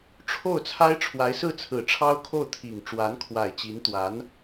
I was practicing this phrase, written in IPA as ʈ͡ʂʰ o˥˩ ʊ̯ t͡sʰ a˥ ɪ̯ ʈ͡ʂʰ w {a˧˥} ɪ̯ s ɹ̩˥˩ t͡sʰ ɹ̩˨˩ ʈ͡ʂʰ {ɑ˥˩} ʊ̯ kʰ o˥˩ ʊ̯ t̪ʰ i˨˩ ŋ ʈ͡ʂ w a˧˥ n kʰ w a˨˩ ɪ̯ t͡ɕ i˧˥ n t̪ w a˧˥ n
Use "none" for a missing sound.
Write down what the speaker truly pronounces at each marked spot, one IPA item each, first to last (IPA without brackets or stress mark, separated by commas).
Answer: a˧˥, ɑ˥